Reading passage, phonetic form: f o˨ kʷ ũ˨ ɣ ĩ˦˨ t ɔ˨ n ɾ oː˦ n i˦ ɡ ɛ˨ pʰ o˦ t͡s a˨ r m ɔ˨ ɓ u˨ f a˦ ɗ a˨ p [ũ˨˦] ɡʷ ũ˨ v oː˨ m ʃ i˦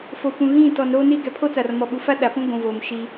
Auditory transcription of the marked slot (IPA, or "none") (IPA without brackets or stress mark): ũ˦